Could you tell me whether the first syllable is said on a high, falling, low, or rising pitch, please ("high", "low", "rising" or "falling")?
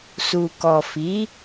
low